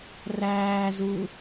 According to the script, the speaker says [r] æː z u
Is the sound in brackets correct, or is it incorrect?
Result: correct